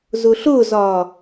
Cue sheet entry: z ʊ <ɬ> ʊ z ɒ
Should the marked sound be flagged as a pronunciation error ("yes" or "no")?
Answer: no